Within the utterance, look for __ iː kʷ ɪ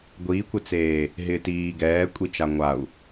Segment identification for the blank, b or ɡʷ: ɡʷ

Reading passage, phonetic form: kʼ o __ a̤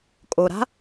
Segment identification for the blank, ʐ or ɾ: ɾ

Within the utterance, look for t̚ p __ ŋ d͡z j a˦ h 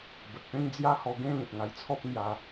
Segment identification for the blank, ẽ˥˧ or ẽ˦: ẽ˥˧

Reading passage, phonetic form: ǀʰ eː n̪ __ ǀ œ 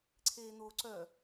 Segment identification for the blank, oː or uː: oː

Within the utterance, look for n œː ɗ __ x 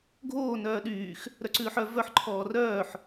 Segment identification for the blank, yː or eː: yː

